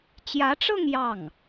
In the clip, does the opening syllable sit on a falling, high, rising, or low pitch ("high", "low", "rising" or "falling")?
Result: rising